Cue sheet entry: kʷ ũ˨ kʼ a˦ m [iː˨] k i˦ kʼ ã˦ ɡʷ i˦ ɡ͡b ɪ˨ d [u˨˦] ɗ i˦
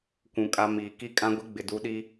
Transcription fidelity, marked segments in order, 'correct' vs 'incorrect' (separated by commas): correct, correct